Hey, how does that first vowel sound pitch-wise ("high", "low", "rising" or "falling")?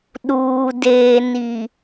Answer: low